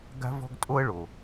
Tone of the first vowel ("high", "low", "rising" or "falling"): high